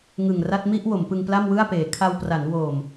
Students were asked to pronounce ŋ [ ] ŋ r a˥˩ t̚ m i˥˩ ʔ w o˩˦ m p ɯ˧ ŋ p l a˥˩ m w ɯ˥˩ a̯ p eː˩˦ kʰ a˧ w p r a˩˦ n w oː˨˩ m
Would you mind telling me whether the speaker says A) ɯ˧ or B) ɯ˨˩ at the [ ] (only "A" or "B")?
B